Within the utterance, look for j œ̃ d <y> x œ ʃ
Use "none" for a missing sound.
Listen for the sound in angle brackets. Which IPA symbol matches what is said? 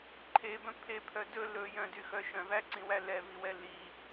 y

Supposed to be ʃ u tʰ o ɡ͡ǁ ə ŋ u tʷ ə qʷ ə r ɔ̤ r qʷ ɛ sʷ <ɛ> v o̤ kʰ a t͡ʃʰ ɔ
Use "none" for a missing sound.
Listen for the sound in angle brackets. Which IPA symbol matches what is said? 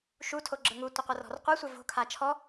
ɛ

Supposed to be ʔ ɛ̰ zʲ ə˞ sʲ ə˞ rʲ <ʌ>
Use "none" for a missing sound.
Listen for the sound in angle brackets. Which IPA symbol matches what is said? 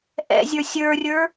ə˞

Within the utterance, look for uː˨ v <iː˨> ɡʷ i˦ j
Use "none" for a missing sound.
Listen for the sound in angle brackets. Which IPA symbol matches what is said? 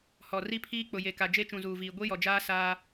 iː˨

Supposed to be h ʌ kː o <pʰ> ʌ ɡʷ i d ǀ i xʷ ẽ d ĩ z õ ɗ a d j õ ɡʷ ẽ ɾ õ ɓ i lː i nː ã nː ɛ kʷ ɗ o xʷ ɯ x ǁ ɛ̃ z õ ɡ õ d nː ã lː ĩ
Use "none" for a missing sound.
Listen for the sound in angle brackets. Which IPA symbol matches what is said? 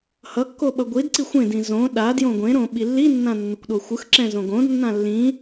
ɓ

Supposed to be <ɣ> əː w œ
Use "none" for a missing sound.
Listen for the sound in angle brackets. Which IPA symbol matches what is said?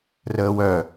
r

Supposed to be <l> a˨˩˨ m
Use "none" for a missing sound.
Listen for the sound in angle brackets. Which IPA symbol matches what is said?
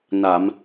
n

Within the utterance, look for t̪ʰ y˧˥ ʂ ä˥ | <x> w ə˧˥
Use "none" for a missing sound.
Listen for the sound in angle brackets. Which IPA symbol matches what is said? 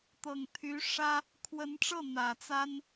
kʰ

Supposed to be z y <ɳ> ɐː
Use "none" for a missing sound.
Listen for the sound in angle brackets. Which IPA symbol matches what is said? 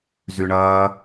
ɳ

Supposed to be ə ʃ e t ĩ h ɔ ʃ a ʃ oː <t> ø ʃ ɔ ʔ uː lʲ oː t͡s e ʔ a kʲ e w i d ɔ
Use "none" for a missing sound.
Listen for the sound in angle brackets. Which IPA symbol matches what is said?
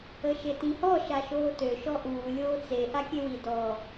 t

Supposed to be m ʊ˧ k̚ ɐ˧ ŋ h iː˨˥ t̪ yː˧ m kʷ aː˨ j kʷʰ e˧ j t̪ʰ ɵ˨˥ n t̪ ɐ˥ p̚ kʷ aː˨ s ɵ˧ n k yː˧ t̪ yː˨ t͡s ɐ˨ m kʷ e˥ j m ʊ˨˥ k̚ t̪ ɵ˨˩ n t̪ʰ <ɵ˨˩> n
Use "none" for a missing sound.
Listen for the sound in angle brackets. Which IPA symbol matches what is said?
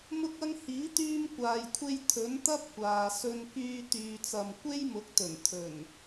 ɵ˨˩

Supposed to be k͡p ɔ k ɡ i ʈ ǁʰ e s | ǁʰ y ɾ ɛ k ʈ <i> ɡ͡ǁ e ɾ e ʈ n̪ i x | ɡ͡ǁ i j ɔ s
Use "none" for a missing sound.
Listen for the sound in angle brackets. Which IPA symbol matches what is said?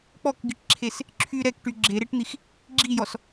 y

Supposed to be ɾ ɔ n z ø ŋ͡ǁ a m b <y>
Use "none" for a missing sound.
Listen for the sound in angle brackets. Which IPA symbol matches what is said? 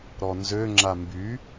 y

